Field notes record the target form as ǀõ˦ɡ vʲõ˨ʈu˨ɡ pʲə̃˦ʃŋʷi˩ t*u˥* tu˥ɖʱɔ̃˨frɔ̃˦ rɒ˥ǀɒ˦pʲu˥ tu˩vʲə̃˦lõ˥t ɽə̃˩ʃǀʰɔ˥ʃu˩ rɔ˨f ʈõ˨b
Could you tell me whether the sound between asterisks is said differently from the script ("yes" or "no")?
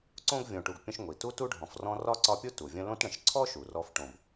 no